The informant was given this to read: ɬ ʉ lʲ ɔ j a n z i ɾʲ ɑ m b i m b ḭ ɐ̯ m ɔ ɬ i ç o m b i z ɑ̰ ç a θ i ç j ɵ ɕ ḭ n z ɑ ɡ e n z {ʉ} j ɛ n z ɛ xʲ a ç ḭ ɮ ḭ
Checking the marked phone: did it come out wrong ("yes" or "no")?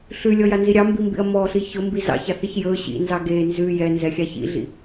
no